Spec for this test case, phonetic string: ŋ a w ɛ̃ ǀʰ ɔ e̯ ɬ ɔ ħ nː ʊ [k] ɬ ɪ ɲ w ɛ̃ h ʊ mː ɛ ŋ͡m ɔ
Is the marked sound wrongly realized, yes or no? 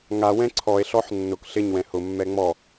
no